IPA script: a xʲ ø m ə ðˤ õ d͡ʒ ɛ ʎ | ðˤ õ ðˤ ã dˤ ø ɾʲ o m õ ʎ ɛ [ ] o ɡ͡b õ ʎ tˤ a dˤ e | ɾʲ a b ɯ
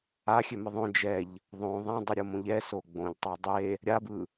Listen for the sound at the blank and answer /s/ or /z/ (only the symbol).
s